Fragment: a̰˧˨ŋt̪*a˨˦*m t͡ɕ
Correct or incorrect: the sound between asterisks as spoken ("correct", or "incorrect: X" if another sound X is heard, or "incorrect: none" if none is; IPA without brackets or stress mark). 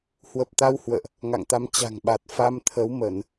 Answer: correct